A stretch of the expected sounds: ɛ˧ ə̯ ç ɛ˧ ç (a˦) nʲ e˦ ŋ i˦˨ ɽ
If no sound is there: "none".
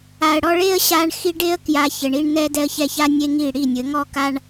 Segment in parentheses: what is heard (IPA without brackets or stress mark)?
a˦